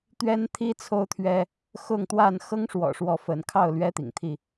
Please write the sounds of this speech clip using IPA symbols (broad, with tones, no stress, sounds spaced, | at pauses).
t̪ ɥ ɛ˦ n t̪ʰ i˦ t͡sʰ o˦ ʊ̯ t̪ʰ ɥ ɛ˦ | x ʊ˥˨ ŋ t̪ w a˥˨ n x ɤ˦ ŋ ʂ w ɔ̰˨˩ ʂ w ɔ˨˦ f ə˨˦ n kʰ ɑ˥˨ ʊ̯ l ɥ ɛ˦ t̪ ḭ˨˩ ŋ t̪ʰ i˥˨